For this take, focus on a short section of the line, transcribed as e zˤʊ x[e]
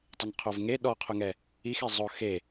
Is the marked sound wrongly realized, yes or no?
no